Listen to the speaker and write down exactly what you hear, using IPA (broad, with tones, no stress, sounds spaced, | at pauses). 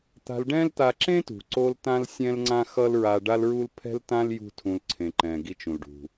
t̪ a̤˧ l ɖ ɛ̃˥ l t̪ a˧ ǁ ẽ˥ t ṳ˩ ǀ o˧ l t ã˥ l sʲ ɛ̃˥ l ŋ͡ǀ ã˥ x ʌ˥ l ɹ a˧ ɖ a˥ l ɹ u˥ l pʰ ɛ̤˥ l t ã˥ l j ṳ˥ tʰ ũ˧ l ǀʰ ẽ˩ ǃ ɛ̃˩ ɡ i˧ t͡ʃ ũ˩ l ɖ ṳ˩